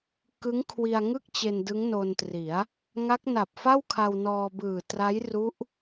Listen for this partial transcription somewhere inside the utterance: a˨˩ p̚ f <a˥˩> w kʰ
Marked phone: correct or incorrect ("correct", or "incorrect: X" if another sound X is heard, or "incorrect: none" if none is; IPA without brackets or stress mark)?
correct